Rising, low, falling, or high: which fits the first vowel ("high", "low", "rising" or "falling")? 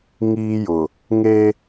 high